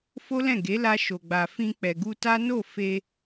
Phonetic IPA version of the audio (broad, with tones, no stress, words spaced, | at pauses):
fo˦lɛ̃˦˨ ɡe˨˦la˧ ʃo˨ɡ͡ba˨ fĩ˧ k͡pɛ˨ɡu˧ta˦ no˦˨fe˧